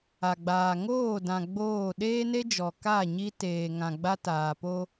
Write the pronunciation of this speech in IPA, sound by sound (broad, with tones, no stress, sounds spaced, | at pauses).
a˨ ɡ͡b aː˨ ŋ oː˦˨ d ã˨ ɡ͡b oː˦˨ ɗ eː˦ n e˦ d͡ʒ ɔ˨ k a˦˨ ɲ i˦ t eː˨ ŋ ã˨ ɡ͡b a˦ t aː˨ p o˦